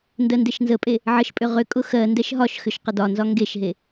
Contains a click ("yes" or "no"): no